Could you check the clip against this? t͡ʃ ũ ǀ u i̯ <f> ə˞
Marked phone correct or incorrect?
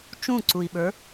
incorrect